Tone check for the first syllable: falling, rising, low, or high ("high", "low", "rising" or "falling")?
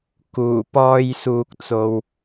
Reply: low